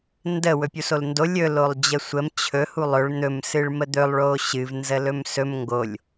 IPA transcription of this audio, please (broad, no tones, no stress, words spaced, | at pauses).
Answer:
ndə wɵpʲusolndo lʲɵ lolˠd͡ʑəsʷəm t͡ɕʰɵ hulˠɵɭ n̪ɵm sɨɭməd̪ɵlˠ ɭoɕɨv nzəlɵmsɵm ŋɡolʲ